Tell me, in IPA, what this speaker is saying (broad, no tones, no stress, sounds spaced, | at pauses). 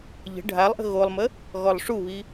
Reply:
ʎ ə̤ ɖʱ a lˠ ʔ ə̤ ɣ o lˠ m ə | ɣ ɔ lˠ ʂ u β i